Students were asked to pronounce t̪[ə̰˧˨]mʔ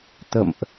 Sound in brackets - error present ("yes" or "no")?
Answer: no